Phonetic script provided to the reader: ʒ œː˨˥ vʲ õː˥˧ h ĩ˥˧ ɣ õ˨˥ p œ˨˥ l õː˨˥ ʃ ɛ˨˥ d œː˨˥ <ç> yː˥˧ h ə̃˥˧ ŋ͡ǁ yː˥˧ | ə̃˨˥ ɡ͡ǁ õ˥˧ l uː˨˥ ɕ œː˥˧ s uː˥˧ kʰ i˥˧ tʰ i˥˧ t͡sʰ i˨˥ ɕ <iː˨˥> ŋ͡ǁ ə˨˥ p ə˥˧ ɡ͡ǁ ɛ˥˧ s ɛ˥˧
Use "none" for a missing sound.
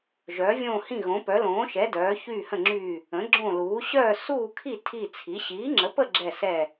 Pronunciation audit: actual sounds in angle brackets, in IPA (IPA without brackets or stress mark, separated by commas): ç, iː˨˥